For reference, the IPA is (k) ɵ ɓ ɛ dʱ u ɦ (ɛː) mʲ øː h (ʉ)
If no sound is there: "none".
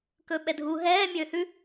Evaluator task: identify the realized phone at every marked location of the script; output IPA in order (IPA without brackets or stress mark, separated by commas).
k, ɛː, ʉ